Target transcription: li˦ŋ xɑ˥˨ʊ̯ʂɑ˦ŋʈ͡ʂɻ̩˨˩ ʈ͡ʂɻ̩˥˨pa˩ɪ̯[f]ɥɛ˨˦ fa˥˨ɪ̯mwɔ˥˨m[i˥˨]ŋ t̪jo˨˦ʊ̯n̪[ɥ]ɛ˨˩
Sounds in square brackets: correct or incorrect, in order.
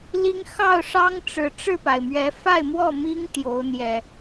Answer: incorrect: m, incorrect: i˦, incorrect: j

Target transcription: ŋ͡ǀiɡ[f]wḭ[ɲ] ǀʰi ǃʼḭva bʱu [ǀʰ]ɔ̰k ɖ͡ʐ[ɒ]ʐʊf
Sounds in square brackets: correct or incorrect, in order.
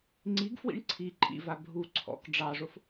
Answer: correct, incorrect: ɳ, correct, incorrect: ɑ

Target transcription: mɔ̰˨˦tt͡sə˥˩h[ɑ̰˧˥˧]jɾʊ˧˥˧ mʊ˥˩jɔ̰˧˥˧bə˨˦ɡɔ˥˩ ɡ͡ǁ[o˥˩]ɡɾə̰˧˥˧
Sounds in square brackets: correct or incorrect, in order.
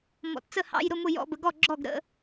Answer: correct, incorrect: ɔ˥˩

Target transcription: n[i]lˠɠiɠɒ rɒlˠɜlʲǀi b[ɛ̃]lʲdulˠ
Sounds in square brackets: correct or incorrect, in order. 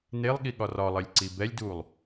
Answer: incorrect: e, incorrect: ɛ

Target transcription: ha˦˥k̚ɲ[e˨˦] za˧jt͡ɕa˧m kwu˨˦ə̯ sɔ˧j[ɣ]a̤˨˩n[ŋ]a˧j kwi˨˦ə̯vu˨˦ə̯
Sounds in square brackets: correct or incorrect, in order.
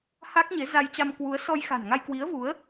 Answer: correct, incorrect: x, correct

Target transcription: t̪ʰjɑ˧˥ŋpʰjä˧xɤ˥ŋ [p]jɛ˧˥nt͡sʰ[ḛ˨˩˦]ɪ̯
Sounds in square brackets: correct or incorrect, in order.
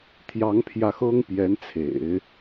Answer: correct, correct

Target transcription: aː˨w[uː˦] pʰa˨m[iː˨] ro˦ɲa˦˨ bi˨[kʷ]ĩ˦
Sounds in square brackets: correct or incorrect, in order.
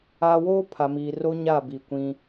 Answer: incorrect: oː˦, correct, correct

